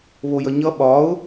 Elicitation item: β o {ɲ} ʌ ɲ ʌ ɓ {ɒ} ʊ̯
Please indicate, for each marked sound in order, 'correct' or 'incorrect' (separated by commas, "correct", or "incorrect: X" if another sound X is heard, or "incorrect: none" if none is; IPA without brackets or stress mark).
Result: incorrect: j, correct